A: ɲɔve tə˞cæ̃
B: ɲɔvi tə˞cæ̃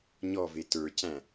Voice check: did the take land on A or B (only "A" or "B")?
A